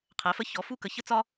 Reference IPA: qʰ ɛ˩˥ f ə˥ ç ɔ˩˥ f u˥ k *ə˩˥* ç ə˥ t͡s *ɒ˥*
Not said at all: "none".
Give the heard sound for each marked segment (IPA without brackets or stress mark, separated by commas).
ə˩˥, ɒ˥